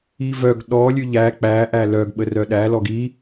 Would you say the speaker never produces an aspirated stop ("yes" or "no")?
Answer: yes